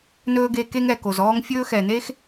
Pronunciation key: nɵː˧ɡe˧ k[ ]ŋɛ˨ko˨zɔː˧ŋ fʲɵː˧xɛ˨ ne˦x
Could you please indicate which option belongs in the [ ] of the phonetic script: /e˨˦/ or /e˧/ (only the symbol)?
e˧